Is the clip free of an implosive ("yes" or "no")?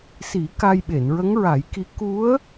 no